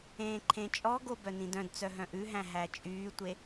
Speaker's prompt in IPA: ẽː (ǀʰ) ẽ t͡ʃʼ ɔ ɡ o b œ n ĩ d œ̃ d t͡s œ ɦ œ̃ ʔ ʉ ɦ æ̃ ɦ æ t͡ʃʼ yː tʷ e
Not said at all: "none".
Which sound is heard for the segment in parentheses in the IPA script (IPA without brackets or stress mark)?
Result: ǃʰ